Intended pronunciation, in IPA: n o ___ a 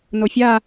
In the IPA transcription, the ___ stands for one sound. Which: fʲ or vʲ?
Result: fʲ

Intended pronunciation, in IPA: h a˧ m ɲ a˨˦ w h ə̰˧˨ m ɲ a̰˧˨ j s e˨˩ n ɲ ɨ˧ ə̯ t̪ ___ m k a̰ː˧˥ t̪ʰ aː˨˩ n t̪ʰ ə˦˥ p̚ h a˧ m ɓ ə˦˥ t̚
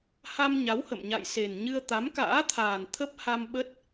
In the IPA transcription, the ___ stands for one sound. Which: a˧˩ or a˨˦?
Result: a˨˦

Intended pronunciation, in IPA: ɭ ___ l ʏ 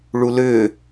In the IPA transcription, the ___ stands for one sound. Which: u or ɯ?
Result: u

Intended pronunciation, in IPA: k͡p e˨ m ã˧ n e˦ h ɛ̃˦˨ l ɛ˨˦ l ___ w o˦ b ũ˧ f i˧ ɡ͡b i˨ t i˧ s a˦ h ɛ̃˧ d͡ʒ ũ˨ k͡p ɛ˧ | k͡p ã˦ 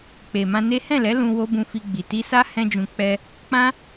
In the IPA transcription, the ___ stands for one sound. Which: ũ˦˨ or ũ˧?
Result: ũ˧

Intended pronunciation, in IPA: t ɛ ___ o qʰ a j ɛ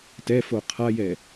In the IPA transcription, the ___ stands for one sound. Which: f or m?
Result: f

